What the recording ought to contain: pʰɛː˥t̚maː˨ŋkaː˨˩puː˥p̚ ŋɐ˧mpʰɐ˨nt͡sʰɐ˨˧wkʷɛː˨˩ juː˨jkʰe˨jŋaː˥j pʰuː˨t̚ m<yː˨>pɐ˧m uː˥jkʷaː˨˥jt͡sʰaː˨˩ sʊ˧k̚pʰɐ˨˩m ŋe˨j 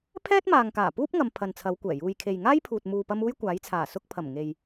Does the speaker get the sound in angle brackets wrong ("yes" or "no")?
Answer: yes